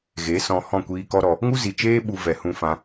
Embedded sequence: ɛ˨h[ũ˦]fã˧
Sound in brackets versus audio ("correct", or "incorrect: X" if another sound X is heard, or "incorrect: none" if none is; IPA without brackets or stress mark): incorrect: ũ˧